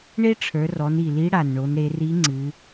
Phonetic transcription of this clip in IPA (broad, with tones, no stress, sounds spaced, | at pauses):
ɳ e˥ ʈ͡ʂʰ ə˞˩˧ r ɔ˩˧ n i˩ l i˧˥ ɽ a˩ n ɳ o˩˧ n ɾ e˩˧ r i˧˥ ŋ͡ǀ ɨ˩˧